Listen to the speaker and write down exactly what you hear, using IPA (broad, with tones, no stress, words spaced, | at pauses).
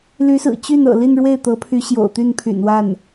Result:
ly˧˥sɹ̩˨˩ t͡ɕy˥˩n ɤ̰˨˩li˥˧n ɻwe˥˩ɪ̯t̪ɤ˧˥pʰy˧˥ ɕjo̰˨˩ʊ̯t̪y˥˩npʰy̰˨˩n wa˥˩n